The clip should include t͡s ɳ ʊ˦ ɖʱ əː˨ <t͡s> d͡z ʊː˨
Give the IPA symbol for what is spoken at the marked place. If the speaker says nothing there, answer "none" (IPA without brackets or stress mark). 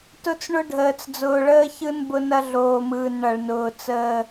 t͡s